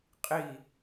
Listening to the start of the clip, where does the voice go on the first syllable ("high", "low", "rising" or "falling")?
falling